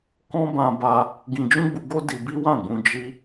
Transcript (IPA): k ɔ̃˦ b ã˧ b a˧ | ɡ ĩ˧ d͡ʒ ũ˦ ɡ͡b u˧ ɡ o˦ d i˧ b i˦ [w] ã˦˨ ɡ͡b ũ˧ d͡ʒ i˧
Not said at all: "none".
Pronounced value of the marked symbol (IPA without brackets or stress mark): w